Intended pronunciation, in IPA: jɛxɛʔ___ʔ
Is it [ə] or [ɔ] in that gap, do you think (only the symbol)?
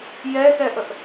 ə